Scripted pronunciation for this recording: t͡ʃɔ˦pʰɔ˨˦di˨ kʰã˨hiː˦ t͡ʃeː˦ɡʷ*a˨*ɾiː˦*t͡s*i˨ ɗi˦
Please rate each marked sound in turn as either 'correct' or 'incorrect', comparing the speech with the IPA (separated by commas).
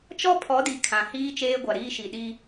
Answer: correct, incorrect